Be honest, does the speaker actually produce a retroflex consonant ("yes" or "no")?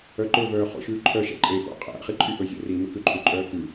no